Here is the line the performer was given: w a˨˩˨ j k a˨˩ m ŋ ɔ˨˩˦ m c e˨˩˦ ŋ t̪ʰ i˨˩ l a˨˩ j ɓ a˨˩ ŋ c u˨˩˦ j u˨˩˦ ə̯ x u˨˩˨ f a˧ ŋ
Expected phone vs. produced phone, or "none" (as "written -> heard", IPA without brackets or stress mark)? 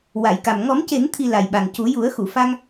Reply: none